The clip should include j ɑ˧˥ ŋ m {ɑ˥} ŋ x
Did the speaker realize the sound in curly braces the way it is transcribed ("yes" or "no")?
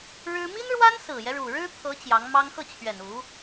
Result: yes